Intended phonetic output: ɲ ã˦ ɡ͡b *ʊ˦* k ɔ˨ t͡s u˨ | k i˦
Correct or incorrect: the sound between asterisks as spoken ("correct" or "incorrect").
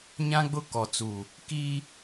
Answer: correct